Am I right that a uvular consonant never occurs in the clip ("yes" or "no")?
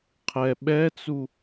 no